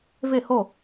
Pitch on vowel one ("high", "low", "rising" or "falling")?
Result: falling